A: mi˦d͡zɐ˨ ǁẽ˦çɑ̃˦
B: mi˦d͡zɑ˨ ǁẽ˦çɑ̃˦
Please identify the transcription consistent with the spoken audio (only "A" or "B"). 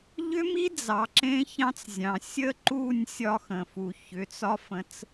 B